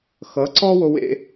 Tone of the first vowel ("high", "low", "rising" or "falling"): rising